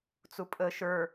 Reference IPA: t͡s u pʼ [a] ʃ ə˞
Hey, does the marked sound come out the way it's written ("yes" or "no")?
no